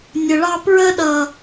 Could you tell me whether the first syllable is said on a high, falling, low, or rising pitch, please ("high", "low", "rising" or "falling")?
low